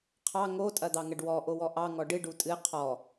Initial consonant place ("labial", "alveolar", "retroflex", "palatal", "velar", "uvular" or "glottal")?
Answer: uvular